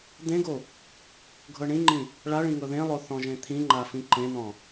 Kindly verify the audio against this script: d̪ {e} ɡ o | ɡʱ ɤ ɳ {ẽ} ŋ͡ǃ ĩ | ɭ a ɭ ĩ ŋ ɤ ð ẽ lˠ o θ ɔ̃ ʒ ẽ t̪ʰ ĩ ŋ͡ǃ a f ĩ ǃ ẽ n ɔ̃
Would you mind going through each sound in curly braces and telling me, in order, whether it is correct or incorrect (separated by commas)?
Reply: incorrect, incorrect